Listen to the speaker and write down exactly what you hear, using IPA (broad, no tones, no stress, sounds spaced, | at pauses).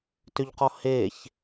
t ʏ ʎ q ɔ h e ç